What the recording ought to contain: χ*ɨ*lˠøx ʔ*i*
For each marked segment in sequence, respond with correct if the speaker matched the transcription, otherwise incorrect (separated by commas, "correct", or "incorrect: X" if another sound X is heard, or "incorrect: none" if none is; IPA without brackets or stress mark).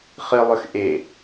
correct, incorrect: e